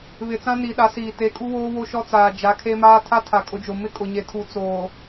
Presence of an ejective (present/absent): present